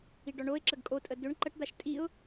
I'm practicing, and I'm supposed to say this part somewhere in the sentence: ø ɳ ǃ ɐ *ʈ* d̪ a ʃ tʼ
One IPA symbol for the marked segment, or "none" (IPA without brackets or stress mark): ʈ